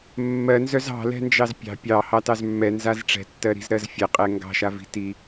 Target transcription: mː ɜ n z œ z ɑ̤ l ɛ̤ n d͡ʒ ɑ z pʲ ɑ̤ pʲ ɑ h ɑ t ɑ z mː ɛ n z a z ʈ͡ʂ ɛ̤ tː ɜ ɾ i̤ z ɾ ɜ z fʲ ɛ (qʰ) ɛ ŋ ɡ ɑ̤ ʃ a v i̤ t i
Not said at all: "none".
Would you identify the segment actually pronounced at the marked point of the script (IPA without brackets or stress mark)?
qʼ